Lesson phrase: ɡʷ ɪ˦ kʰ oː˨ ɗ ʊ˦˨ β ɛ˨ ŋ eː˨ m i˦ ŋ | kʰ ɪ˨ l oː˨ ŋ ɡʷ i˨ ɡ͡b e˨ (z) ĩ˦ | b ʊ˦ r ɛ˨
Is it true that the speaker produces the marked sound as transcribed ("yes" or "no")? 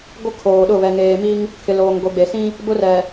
no